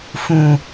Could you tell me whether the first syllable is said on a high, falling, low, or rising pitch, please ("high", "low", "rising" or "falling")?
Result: low